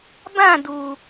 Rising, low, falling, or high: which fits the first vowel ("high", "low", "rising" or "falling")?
falling